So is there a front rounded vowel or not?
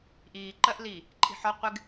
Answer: no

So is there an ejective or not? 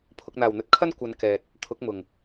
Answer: no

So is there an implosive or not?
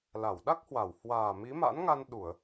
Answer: yes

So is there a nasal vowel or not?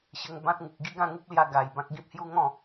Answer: yes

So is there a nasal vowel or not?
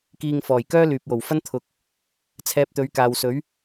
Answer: no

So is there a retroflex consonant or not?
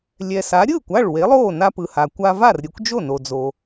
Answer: yes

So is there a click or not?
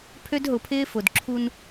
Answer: yes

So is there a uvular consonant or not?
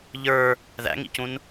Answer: no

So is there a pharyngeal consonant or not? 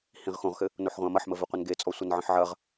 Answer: yes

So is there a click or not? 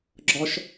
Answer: yes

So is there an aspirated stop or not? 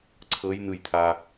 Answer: yes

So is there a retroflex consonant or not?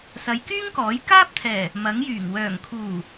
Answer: no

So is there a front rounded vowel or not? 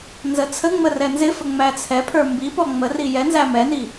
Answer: no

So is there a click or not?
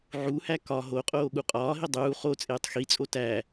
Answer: no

